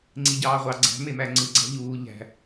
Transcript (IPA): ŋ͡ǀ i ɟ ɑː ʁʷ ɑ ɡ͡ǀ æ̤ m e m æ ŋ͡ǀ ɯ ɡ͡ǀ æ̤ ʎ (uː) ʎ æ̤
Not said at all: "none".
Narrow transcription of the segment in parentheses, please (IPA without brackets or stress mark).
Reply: uː